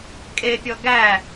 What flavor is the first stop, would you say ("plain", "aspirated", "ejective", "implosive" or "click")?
ejective